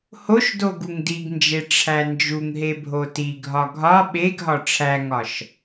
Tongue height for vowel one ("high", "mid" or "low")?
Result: mid